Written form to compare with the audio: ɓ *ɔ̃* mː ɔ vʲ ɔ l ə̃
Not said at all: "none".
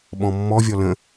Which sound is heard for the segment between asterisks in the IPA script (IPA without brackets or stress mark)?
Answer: ɔ̃